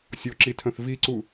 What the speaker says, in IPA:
sʲɔǁitʰœ̃θ viǀu

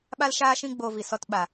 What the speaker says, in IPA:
ɓa˦lʃaː˦ʃĩ˦ ɡ͡bo˧vi˨sɔ˧t ɓa˨

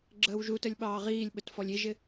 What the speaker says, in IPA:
ɡ͡ǁəːwʒutəlʲ ɓɑːʁiːlʲɓət fɔlʲiʒɪ

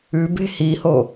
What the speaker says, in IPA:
ʉ be̤hiho

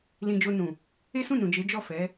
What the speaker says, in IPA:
lĩ˧d͡ʒo˧nũ˨ | e˦sũ˦˨nũ˨d͡ʒe˨˦ d͡ʒɔ˦˨ fɛ˨˦

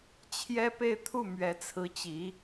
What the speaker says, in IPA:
t͡ɕʰjɛ˥pe˥˧ɪ̯t̪ʰu˥˩ mɥɛ˧˥t͡sʰɹ̩˧˥ t͡ɕi˧˥

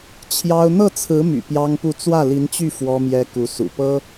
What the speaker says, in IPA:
t͡ɕʰjɑ˥ʊ̯ n̪ɤ˥˩t͡sʰɹ̩˧˥my̰˨˩ pjɑ˥ŋpu˥˧ t͡swä˥˩li˧˥nt͡ɕy˥˩ fwɔ˥mjɛ˥ ku˧˥ sṵ˨˩pɤ˥

